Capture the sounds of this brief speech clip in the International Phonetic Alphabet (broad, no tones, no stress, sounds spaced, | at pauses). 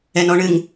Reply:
ɛ n ɔ ɳ ɨ ŋ